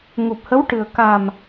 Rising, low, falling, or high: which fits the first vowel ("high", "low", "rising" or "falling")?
low